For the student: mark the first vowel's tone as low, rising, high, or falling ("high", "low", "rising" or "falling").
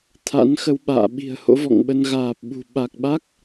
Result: rising